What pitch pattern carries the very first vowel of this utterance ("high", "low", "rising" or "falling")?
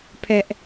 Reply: high